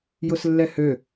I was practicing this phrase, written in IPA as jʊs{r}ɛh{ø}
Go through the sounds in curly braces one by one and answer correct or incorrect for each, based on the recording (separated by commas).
incorrect, correct